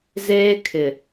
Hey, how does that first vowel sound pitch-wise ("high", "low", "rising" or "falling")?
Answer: high